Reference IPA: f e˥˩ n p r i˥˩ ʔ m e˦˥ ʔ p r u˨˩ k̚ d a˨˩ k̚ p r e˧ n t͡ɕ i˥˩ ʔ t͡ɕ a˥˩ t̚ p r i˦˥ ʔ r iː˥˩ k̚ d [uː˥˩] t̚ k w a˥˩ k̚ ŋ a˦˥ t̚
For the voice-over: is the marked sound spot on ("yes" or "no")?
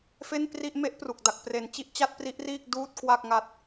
yes